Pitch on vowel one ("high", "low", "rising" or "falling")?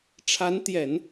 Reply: rising